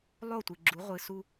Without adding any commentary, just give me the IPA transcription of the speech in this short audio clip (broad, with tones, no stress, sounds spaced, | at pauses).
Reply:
lˠ o˦˨ tʷ ɨ˨ ɡ͡ǁ u˨˦ ʁʷ ɨ˨ s u˦